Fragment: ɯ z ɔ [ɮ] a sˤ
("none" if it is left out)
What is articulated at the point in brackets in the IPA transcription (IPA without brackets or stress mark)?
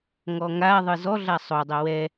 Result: ɮ